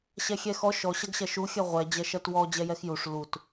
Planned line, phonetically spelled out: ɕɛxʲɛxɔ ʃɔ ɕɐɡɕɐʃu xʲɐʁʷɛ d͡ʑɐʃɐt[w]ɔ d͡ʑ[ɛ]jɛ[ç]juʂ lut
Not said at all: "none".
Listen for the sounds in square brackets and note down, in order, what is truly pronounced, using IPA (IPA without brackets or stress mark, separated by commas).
w, ɛ, x